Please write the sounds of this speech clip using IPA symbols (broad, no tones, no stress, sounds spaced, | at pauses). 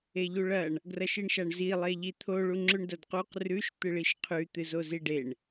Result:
e ʎ u ɭ ɐ ɳ | ɡ r ɐ ʃ i ɳ ʃ a ɳ z i lˠ e ʎ i t̪ʰ o ɭ u ŋ͡ǁ ʉ ɳ d ɐ d q u q r ʉ ʃ t̪ ɨ ɭ i ʃ qʰ ʉ t̪ ɨ z o z i ɖ e ɳ